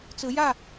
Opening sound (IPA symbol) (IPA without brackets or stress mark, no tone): t͡s